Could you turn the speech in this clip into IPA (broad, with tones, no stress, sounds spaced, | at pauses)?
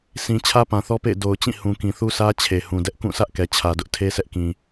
s ĩ˨ t͡ɕʰ ä˦ p ã˨ θ ɔ˦ p ḛ˦˨ ɪ̯ d o˨ ʊ̯ t͡ɕ ĩ˦˨ h ũ˨ k ĩ˨ θ u˦ s ä˦ t͡ɕʰ e˨ h ũ˨ d ɛ˦ ʔ k ũ˦˨ s ä˦ ʔ k ɛ˨ t͡ɕʰ ä˨ d ʊ˦ ʔ tʰ e˦ s ɛ˦ ʔ k ĩ˨